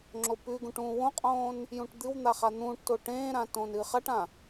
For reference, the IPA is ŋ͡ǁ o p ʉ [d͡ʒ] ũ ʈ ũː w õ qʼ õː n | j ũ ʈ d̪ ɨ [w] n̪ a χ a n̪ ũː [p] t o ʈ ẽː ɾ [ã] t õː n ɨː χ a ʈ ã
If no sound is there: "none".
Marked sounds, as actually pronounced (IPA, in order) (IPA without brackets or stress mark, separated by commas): ɡ, w, ʈ, ã